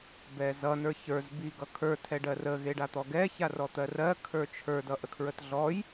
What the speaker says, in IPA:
bɛzʌ nə˞çə˞z biɡʌkʰə˞ tʰɛɖɜrə ɣeɖat̪ɔɡɛ çarɔt̪ɜrɜ kʰə˞t͡ʃʰə˞ dʌʔəkʰɹətɮɔj

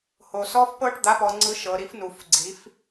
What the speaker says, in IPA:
ho˨ sɔ˦˥fpɤ˦˥ʈ d̪a˨˦pɔ˨ŋ͡ǀɯ˨˦ ʃɤ˨ɾi˨˦fnu˨˩˦fɡ͡ǀi˨˦f

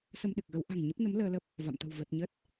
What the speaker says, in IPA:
sə˧mɗɨ˨˩k̚ɣə˨˦wʔa̤˨˩ŋ ɲə˦˥p̚ nə˨˦m ləː˧lə˦˥p̚ | va̰˧˨mt̪ə̤˨˩w və˨˩t̚ ɲə˦˥t̚

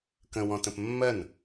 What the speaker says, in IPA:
kə̃ wɔ̃tə̃pmːɜn

